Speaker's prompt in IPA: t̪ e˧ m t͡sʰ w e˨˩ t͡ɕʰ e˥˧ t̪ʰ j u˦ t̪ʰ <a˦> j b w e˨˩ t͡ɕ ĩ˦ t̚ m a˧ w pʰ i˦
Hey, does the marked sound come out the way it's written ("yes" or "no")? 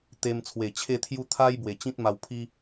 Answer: yes